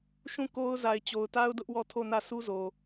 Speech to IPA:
ʃ ũ˦˨ k o˦ ʊ̯ z a˨ ɪ̯ t͡ɕ o˨ ʊ̯ t a˦ ʊ̯ d ʊ˦ ʔ w ɔ˦˨ tʰ o˦˨ n ä˦˨ s u˦ z o˨

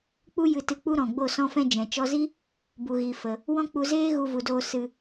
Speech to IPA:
k͡p u˦ j ɨ˧ t ɨ˧ k͡p u˦ ɾ ɔ̃˨ ɡ͡b o˦˨ s ɔ̃˧ f ɛ̃˧ d͡ʒ ɛ̃˨ t͡ʃ ɔ˧ z i˦ | b u˨ ɣ i˨ f ə˨ | w ɔ̃˦ k͡p u˧ z eː˦ ɣ u˧ v u˨ d oː˧ s ɨ˧

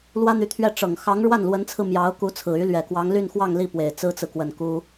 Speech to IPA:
l w ä˥ n̪ y˧˥ t̪ʰ ɥ ɛ˥˩ ʈ͡ʂ ɤ˨˩ ŋ x ɑ˧˥ ŋ ɻ w a˥˩ n l w ə˧˥ n t͡sʰ ɹ̩˧ m j ɑ˧˥ ʊ̯ k u˧˥ t͡sʰ ɹ̩˨˩ y˧˥ l ɥ ɛ˨˩ k w ɑ˧˥ ŋ l y˥˧ n x w ɑ˥˧ ŋ l i˥˩ p w e˨˩ ɪ̯ t͡s ɹ̩˥ t͡s ɹ̩˨ k w ə˨˩ n k u˥

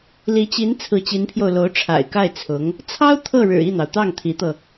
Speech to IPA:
l i˧˥ t͡ɕ i˧˥ n t͡sʰ ɹ̩˧˥ t͡ɕ i˧˥ n pʰ j o˧ ʊ̯ l o˧˥ ʊ̯ ʈ͡ʂʰ a̰˨˩ ɪ̯ k a˥˩ ɪ̯ t͡sʰ ʊ˧˥ ŋ | t͡sʰ ɑ˥ ʊ̯ t̪ʰ ɤ˥˩ ɻ ɻ̩˨˩ i˥˩ n̪ ɑ˩ ʊ̯ t̪ ɑ˥˩ ŋ t̪ʰ i˧˥ t̪ ɤ˧

